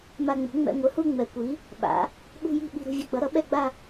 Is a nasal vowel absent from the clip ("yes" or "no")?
yes